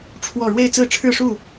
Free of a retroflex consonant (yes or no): no